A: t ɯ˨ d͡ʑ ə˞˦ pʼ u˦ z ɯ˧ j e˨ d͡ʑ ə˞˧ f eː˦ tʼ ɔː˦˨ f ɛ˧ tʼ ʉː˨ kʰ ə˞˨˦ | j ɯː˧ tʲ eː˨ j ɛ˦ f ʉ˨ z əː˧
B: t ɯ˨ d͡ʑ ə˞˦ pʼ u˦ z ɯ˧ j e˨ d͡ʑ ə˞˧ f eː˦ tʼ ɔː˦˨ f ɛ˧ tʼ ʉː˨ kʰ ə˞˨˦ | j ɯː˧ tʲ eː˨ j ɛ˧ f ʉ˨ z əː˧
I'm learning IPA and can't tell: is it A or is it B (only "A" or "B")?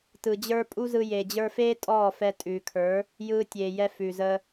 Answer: B